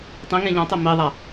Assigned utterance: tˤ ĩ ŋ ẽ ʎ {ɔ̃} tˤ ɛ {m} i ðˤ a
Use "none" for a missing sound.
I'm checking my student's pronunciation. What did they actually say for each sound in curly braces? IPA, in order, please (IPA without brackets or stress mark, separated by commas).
ɔ̃, m